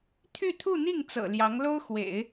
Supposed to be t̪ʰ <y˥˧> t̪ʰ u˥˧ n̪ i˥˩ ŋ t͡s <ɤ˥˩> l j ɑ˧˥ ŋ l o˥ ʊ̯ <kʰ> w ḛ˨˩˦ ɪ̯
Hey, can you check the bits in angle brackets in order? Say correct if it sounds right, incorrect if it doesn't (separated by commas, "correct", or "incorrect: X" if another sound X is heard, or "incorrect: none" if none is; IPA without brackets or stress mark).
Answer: correct, incorrect: ɤ̰˨˩, incorrect: x